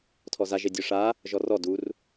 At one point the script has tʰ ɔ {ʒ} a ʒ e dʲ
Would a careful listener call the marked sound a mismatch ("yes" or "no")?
yes